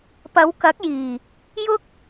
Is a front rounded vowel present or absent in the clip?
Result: absent